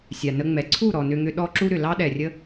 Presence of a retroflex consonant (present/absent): absent